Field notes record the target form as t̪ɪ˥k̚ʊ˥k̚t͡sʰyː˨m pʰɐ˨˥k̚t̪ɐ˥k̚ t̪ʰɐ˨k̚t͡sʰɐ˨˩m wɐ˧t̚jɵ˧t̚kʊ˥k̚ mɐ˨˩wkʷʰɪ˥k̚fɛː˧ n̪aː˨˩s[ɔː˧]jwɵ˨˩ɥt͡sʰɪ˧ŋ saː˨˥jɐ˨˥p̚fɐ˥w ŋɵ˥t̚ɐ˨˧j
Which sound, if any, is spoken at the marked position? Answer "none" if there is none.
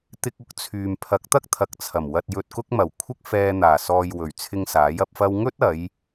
ɔː˨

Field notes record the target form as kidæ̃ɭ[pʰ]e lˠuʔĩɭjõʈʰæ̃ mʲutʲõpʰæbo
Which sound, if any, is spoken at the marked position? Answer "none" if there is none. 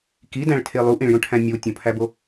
tʰ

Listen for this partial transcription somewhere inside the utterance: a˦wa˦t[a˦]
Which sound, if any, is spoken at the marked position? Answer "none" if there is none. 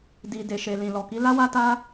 a˦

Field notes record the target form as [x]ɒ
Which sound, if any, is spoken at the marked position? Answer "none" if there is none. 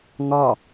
ŋ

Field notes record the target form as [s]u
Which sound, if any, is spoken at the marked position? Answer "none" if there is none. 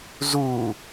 z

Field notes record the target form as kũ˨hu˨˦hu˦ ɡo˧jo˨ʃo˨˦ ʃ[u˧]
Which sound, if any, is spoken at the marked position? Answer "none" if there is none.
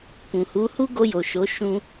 ũ˧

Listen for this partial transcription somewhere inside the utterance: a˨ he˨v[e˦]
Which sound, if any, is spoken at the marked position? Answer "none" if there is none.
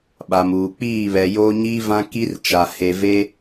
e˦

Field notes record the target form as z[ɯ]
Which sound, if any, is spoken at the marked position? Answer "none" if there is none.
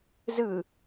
ɯ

